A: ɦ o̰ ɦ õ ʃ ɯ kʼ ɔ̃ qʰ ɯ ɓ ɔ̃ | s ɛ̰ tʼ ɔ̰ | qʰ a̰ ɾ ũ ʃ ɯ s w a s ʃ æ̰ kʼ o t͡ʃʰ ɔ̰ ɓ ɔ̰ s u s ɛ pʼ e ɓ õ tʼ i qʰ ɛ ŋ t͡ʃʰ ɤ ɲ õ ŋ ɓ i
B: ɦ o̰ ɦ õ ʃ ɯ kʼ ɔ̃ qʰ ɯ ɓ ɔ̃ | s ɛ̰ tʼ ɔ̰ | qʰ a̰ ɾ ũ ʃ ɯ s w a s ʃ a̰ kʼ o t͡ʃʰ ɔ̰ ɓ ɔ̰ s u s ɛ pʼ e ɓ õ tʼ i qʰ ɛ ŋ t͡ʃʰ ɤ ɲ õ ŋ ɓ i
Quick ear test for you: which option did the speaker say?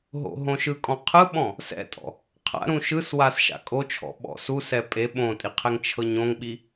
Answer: B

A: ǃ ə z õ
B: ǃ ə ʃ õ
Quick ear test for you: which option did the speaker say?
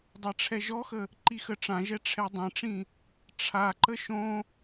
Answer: B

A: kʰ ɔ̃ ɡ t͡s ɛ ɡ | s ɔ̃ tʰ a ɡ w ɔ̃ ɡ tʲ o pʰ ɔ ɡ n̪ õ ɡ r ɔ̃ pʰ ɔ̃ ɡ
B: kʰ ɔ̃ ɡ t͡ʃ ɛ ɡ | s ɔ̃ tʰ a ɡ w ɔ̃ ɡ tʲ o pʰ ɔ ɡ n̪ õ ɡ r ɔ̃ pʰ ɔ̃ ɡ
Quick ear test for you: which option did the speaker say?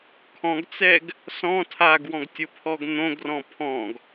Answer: A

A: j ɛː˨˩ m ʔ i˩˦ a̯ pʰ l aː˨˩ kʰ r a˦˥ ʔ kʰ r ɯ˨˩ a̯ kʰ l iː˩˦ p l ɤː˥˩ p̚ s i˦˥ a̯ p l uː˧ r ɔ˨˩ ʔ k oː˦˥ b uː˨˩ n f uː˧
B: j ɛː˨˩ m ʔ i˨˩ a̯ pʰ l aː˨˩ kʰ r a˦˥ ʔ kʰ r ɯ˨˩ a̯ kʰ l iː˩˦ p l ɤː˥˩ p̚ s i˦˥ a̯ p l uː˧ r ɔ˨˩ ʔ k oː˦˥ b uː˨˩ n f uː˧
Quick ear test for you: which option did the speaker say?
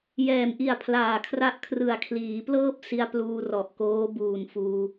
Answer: B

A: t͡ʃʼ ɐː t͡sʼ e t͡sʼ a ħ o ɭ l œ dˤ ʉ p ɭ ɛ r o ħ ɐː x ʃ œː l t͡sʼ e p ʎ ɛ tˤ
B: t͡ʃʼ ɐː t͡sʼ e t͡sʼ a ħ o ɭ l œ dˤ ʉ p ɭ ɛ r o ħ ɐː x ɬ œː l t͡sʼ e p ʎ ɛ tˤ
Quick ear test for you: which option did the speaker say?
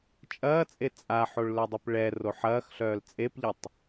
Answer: B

